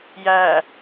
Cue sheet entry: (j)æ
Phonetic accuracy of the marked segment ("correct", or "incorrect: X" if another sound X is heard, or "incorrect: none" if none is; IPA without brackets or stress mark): correct